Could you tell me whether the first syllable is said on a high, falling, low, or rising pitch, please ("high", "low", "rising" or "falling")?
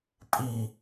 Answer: low